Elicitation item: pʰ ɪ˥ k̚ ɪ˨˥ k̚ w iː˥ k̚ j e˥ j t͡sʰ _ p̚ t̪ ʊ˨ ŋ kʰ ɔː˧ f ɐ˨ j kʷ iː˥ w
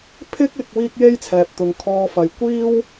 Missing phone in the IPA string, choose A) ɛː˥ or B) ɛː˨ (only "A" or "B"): B